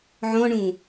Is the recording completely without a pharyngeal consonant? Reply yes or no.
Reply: no